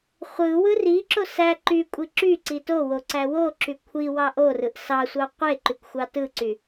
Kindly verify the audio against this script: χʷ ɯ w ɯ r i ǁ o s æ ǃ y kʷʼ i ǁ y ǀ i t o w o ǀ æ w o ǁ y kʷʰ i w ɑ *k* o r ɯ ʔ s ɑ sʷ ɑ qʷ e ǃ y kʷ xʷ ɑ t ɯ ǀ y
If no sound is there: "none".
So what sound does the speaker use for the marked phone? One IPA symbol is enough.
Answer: ʔ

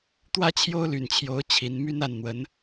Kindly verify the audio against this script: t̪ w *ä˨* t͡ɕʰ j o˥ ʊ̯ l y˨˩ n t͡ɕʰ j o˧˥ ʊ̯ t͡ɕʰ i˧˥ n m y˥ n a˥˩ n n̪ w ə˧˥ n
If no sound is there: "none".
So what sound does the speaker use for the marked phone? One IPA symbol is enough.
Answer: ä˥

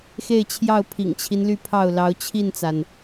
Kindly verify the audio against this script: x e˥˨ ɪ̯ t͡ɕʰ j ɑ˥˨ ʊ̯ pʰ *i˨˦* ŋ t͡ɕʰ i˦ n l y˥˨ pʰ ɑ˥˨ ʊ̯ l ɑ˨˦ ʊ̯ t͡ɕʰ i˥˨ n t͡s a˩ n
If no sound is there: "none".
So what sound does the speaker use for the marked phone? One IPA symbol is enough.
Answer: ḭ˨˩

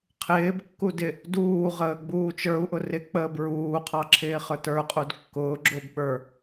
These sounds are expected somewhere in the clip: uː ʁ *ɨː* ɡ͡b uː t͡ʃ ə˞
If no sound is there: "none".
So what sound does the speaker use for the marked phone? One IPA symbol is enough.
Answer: əː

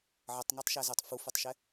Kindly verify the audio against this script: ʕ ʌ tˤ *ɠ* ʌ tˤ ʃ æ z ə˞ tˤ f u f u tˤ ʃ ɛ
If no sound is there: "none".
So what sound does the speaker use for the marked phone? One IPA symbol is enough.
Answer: ŋ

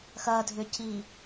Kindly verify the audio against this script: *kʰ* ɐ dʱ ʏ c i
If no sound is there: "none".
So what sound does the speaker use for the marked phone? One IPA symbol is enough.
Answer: x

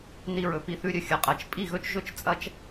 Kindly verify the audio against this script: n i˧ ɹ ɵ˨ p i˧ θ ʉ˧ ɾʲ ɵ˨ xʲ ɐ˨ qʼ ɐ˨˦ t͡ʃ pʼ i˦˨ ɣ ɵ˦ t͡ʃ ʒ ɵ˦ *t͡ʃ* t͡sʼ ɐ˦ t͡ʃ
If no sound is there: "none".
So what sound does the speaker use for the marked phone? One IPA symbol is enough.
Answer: t͡ʃ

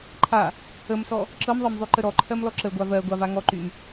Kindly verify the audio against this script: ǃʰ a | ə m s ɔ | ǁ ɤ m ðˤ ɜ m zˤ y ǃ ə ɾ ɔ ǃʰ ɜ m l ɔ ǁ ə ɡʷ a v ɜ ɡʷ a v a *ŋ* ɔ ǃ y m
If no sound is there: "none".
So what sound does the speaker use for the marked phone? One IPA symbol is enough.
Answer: ŋ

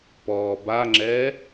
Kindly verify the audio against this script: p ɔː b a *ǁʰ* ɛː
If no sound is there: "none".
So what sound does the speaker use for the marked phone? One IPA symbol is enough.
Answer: ŋ͡ǁ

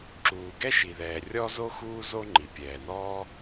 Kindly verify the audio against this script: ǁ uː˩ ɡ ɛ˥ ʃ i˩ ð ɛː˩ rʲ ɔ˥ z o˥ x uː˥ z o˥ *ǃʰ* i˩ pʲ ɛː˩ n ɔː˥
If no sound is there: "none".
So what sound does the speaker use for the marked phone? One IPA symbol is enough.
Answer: ŋ͡ǃ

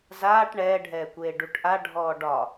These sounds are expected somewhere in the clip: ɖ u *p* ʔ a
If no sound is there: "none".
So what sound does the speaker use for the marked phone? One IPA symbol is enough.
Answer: ʈ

